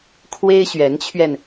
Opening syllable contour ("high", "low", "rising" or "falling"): high